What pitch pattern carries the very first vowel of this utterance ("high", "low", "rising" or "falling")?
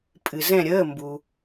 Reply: low